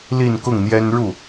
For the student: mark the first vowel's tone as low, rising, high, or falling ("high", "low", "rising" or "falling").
falling